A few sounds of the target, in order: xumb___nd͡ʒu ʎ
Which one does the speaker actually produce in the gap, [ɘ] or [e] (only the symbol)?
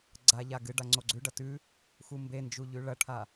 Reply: e